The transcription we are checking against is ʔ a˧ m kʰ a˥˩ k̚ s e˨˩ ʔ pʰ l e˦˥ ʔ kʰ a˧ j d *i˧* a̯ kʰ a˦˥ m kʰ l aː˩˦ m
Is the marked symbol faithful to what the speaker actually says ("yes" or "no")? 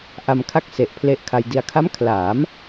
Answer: yes